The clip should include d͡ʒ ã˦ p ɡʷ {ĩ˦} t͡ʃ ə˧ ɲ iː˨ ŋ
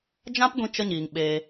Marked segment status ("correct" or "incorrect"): incorrect